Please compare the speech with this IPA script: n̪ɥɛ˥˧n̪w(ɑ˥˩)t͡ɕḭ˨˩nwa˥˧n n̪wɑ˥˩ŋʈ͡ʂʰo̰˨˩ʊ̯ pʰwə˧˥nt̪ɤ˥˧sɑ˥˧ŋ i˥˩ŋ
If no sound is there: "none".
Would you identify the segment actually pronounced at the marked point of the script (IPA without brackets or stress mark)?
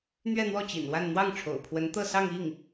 ɔ˥˩